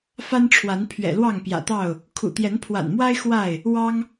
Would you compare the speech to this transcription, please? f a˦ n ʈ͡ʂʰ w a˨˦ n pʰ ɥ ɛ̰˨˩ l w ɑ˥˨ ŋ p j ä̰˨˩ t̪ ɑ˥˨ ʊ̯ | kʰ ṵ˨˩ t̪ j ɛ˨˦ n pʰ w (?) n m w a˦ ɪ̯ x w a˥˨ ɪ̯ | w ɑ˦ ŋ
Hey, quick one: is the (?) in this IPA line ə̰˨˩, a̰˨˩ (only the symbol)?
a̰˨˩